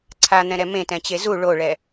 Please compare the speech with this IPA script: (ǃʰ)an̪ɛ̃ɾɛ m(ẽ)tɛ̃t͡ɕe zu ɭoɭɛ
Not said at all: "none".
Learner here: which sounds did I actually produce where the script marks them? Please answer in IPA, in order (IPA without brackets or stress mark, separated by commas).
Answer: ǀʰ, ẽ